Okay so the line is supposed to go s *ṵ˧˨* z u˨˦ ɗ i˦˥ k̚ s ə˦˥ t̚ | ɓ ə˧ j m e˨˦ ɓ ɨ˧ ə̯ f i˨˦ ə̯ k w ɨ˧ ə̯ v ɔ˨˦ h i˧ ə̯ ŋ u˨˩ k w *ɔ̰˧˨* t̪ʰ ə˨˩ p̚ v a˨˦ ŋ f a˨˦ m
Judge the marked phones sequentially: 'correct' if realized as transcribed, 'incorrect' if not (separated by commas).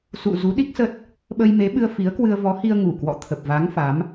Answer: correct, correct